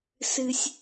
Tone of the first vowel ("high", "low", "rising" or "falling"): low